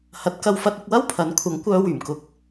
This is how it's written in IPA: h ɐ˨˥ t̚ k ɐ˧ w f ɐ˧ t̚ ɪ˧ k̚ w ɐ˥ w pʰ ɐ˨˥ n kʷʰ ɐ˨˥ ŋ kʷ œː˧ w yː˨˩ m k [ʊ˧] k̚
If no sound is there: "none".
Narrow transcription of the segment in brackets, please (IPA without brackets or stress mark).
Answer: ʊ˧